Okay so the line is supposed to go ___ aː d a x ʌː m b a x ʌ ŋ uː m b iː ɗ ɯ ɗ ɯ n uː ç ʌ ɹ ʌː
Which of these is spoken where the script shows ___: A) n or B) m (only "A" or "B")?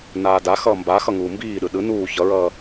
A